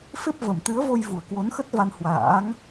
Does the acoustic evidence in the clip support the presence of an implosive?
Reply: no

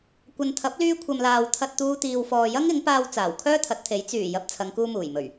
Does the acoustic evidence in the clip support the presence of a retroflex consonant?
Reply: no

